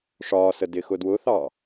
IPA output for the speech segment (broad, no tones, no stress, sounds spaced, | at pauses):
ʂ ɒː s ə d ɪ x ʊ d w ʊ θ ɑ